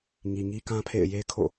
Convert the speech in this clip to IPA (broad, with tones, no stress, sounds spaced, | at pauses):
ŋ i˨ ŋ i˦ k ã˦ pʰ ḛ˦˨ ɪ̯ j e˦ kʰ o̰˦˨